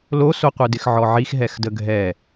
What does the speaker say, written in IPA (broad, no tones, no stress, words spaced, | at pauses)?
losoqʷɯdɪx ʕɔʕix ɦɛxdəɡʱɛ